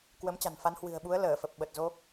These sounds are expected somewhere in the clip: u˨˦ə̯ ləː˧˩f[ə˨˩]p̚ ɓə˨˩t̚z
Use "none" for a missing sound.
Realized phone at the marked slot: ə˨˩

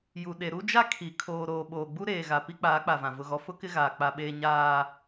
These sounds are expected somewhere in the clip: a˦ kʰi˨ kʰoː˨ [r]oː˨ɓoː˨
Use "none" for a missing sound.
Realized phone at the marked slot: ɾ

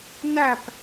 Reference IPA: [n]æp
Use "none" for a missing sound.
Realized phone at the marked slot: n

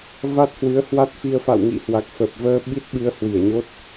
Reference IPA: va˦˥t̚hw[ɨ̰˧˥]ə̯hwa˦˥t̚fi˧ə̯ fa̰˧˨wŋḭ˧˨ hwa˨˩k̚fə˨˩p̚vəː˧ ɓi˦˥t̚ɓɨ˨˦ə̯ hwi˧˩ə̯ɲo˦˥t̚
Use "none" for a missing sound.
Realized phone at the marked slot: ɨ˨˦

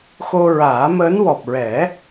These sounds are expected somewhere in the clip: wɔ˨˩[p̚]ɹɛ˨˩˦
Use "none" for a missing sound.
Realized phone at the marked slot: p̚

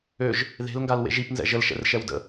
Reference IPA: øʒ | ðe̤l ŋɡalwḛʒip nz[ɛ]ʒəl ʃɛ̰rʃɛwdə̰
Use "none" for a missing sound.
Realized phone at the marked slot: ɛ̰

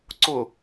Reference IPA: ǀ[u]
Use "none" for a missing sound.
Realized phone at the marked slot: ʊ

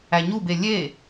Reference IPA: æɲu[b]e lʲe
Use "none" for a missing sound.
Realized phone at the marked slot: b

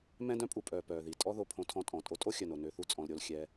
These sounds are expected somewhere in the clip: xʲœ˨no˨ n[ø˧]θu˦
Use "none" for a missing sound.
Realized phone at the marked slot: ø˧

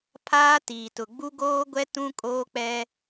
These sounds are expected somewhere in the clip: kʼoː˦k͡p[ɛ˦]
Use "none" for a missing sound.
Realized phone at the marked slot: ɛ˦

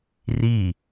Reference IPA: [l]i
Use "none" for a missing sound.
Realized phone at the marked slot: r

